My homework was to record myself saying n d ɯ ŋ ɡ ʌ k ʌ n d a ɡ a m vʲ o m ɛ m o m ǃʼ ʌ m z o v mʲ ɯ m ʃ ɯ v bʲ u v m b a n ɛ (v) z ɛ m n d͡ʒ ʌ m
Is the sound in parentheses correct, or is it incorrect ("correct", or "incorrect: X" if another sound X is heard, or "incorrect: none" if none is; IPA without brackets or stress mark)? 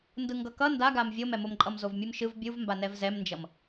correct